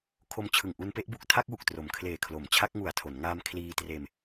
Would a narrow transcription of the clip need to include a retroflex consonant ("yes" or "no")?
no